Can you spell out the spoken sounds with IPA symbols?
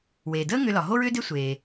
w eː˩ d əː˥ ŋ ʏ˧ l ɒ˩ ɦ o˥ ɹ ʏː˥ d e˥ sʷ eː˩

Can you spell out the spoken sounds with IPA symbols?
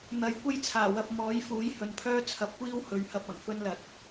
n̪ ɐ˨˥ j kʷ ɐ˥ j t͡sʰ aː˨˩ w ɐ˧ p̚ m ɔː˨˥ j f uː˨˥ j h ɵ˨ n pʰ œː˥ t͡sʰ ɐ˨ p̚ kʷ iː˥ w h ɵ˨˧ ɥ h ɐ˧ p̚ ɐ˨˩ ŋ f ɵ˥ n l ɐ˨˥ t̚

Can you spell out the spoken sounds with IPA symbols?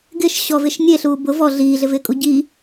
ɡ ɪ ʃ ɕ ɔ v ɪ ʃ nʲ e ɬ uː b ʊ v ɔ ɮ iː ɮ ɪ v ɪː kʼ u ɟ i

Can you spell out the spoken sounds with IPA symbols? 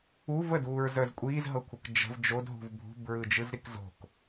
u v ə d uː ɹ z œ z kʷʼ iː z ɦ ɤ kʷʰ ɤ k d͡ʒ ə̤ v d͡ʒ o d ɦ ṳ v bʱ ṳ b ɹ ɯ d͡ʒ ɯ z ɾ i k z o̤ k

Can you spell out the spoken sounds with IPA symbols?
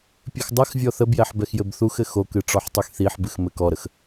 pʲ ɨ x dˤ ɘ x vʲ ɔ θ ə b j ɛ ħ b ɛ x j ɘ b θ u x ɘ x o k ɨ ʈ͡ʂ ɔ ħ tˤ y x θ i ħ b ɨ x m ɘ k ɔ ɾ ə x

